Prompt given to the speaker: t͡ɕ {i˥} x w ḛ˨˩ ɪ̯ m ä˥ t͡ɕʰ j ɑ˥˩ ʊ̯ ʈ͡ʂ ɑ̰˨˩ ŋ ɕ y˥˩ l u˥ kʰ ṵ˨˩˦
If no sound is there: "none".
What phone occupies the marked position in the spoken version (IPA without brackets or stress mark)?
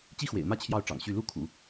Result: i˥